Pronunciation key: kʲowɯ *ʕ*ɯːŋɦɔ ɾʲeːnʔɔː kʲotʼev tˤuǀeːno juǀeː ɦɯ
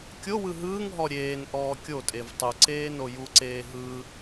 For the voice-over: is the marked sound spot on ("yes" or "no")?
no